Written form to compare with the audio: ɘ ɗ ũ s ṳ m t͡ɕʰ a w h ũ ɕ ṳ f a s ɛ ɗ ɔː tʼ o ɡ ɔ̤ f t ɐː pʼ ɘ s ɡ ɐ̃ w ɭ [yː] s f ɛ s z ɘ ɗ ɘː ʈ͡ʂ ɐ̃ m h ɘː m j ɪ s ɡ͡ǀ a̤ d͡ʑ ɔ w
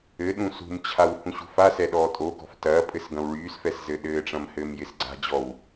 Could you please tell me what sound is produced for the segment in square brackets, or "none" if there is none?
yː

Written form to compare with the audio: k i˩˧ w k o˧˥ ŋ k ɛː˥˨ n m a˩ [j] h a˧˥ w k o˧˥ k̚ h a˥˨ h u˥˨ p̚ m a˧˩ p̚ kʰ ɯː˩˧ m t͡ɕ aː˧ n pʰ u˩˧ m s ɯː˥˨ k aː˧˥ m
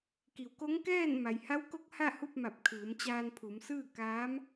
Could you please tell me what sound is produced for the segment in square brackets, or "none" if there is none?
j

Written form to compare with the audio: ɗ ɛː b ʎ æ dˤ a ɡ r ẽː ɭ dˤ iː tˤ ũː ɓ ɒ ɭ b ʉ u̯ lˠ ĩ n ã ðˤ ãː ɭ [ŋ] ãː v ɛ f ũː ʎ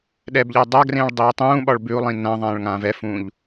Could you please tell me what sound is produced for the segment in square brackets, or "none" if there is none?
ŋ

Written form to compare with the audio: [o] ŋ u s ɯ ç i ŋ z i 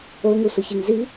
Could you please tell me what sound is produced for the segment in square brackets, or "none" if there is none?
o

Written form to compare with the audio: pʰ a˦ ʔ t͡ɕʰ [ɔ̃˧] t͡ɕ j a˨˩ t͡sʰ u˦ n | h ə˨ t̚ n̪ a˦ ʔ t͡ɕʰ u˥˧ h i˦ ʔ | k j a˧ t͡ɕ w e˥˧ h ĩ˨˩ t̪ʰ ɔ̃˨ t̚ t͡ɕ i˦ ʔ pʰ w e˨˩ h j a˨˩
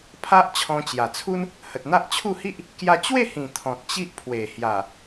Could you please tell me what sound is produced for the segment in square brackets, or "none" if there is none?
ɔ̃˧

